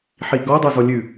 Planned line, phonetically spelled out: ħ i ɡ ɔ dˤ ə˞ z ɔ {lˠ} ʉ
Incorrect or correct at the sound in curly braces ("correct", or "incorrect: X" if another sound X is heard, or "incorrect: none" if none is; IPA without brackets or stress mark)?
incorrect: lʲ